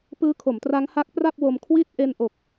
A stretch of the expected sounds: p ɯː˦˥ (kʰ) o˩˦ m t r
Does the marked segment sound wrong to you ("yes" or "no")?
no